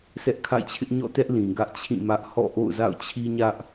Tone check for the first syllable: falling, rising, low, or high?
high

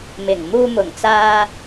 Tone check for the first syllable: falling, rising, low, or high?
low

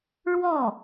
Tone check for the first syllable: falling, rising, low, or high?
falling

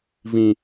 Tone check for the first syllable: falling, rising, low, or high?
low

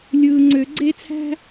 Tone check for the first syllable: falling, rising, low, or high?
low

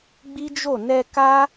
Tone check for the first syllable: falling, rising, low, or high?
high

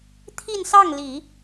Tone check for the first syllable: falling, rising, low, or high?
falling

